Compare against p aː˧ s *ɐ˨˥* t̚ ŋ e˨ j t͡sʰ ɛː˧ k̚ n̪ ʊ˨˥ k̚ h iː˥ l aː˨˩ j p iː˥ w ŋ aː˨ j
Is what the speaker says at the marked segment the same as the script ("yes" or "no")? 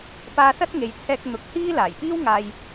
no